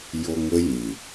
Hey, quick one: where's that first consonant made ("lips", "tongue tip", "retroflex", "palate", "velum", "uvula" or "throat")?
palate